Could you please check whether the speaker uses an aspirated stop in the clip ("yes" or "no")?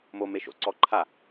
yes